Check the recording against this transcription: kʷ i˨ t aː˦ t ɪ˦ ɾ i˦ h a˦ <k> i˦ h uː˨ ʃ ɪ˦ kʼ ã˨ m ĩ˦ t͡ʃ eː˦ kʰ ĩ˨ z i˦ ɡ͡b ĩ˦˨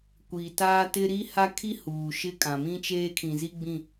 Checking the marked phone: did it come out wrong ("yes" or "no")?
yes